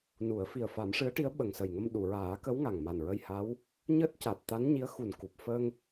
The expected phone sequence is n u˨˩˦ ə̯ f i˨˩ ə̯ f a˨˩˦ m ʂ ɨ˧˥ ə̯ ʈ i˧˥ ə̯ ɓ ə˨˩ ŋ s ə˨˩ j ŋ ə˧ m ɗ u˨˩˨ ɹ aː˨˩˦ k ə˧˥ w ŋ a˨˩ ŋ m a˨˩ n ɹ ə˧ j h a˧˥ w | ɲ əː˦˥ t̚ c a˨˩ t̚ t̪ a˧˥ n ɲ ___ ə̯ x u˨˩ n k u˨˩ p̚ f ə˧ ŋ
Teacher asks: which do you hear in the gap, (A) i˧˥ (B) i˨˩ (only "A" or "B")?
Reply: A